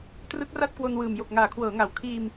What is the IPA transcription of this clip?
t r ɯ˦˥ k̚ r a˥˩ t̚ k w o˧ n w ɯː˨˩ m j o˨˩ k̚ ŋ aː˩˦ kʰ w ɤː˩˦ ŋ a˩˦ w kʰ iː˧ m

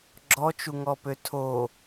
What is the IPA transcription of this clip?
ɡ͡ǁ ɔ t͡ʃ u ŋ ɔ p ø tʰ o

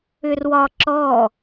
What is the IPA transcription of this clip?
ʏ r w ɒ ǁ ɔ

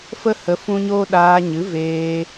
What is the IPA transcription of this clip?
f ə˦ h ə˧ f ũ˦ ɲ oː˦ ɗ aː˧ ɲ ɨ˨˦ v eː˧

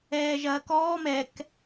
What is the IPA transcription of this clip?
ɛː ʒ ɐː k ɔː m ɛ k

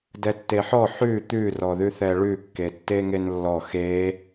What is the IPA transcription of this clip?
d ɛ tː e ħ ɔ ħ ʉ t̪ ʉ r ɔ ð ʉ θ ɛ ɭ ʉ kː e tː e ŋ e n lː ɔ x e

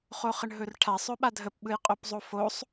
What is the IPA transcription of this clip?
χ o χ ə ɳ ɦ ɵ r ʈʰ a sˤ ɵ ɓ a dʱ ə p ɓ ɯ j qʼ o p zˤ o f o sˤ

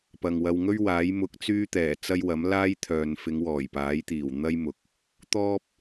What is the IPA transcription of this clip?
p ɐ˨ ŋ w ɐ˧ w ŋ ɵ˥ ɥ w aː˨˥ j m ʊ˧ k̚ t͡s yː˥ t̪ ɛː˨˩ t͡s ɐ˥ j w ɐ˨˥ m l aː˥ j t̪ʰ œː˨ n f ɪ˨˧ ŋ w ɔː˨˩ j p aː˨˥ j t̪ iː˨˩ w n̪ ɐ˥ j m ʊ˨˥ k̚ | t̪ ɔː˥ p̚

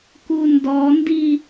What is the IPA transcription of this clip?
k u n d ɔ n d i

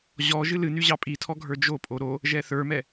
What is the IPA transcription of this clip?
ʑ ɔ ʒ ɨ l ɨ n y ʑ ɑ pʼ i tʰ ɔ ɡʱ ə˞ d͡ʒ o pʼ o ɾ o | ʒ ɛ θ ə˞ m ɛ

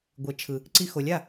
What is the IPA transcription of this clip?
ɡʷ e˩˥ t͡ʃʰ ɯ˩ | ǀ i˧ x o˩˥ lʲ a˥˩

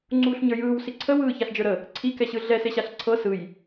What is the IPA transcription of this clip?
ŋ͡ǀ uː ɬ ɲ ə˞ j ɯː w s i ǀʰ ə w ɯː ç a ɬ d͡ʒ ə˞ ɾ ə | ǀʰ i k ɛ ɕ ɯ ɮ ɛ s e ɕ a ɬ ǀʰ ɤ s ɯ j

